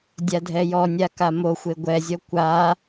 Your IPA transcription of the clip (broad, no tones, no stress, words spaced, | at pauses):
dʲadʱɛjɔnʲa kamoxʷe ɡʷɛzʲɔ kʷa